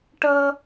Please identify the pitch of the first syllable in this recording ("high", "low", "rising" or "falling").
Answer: high